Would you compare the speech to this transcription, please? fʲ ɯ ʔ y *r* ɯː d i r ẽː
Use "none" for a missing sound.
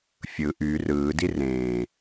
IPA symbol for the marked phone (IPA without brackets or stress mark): r